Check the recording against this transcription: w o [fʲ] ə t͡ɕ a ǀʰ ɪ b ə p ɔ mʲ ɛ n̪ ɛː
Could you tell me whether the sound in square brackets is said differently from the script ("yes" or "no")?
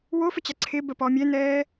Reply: yes